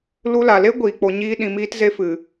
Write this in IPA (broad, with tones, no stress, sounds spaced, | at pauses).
l u˧ l a˨ l e˦ ɡʷ iː˨ k͡p o˧ ɲ iː˦ ɗ ĩ˧ m iː˦ t z e˦ f ɨ˨